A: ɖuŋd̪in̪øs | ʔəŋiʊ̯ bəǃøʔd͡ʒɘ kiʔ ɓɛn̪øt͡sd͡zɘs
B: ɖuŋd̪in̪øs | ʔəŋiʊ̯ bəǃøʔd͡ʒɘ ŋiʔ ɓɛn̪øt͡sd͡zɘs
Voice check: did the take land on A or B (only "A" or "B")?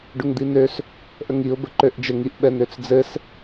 B